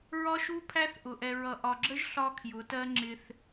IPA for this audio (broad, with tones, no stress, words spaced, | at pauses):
ɹɒ˦ʃu˦ pʰæ˦θʔʊ˨ ʔɛ˨ɹʌ˨ʔɒ˨ɡ͡ǁə˦ʒ ɬɒ˦kʰjʊ˨˦tɜ˦ŋ͡ǁɪ˦θ